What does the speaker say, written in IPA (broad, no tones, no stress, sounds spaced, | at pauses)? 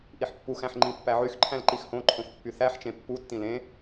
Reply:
ʔ i ħ pː u x æ̃ ħ ŋ͡ǃ ĩ pː æ ʕ y x ǃʰ æ̃ l ǃ i x h õ ǃʰ õ x pː y θ æ ħ t͡ʃ ẽ pː u tː ĩ l ẽ